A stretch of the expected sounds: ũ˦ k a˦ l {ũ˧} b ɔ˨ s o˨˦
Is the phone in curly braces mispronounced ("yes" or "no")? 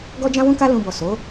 no